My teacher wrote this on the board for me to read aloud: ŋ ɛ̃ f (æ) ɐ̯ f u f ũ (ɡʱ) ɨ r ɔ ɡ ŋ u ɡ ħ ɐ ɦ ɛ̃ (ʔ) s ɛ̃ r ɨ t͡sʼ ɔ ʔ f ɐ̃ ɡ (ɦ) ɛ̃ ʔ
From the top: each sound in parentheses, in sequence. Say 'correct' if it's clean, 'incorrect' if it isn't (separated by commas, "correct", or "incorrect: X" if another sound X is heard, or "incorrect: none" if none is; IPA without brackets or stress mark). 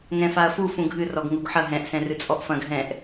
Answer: incorrect: a, correct, correct, correct